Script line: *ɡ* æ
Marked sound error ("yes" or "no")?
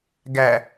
no